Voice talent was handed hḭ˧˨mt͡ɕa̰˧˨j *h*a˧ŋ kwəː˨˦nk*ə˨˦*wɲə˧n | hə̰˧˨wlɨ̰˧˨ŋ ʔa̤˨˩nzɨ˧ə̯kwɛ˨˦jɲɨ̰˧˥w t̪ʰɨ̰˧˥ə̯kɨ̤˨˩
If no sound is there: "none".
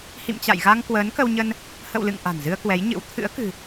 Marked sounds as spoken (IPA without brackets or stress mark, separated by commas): ɣ, ə˧